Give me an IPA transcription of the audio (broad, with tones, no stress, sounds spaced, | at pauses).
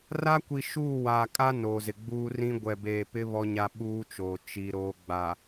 r a˦ kʷ i˨ ʃ uː˦˨ w aː˨ kʼ a˦ n oː˨ z ɪ˨ ɡ͡b uː˦ r ĩ˦ ɡʷ ɛ˨ b eː˨ p ɪ˦ β ɔ˦ ɲ a˦ ɓ uː˦ t͡ʃ oː˨ t͡ʃ i˦ ɾ oː˦ ɡ͡b a˨